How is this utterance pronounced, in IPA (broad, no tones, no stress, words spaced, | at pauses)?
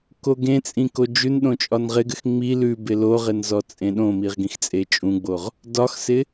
koɡẽt͡sʼĩ kod͡ʒʉnɗõ t͡ʃʼɒnʁɪɡɘx ŋ͡mi lʉbɪ loʁɪn zɔt͡sʼẽɗõmiʁ ɡĩxt͡sʼet͡ʃʼũɡ͡boʁ | dɒxsɪ